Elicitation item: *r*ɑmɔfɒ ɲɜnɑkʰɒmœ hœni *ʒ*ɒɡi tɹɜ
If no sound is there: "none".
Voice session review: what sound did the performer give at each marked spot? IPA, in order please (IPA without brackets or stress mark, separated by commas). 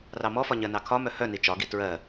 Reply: r, t͡ʃ